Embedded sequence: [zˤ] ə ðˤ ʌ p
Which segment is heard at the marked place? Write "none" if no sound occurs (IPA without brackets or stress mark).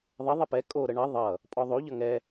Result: ðˤ